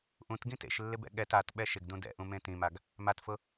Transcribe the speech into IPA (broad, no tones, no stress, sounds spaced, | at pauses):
ʔ ũ t ɡ ĩ t ḛ ʃ lː ɪ b ɛ̰ ɠ ɛ t a t ɓ ɛ ʃ ɪ ɡ d ũ d ɛ̰ ʔ ũ m ẽ t ĩ m a ɡ | m a t f ʊ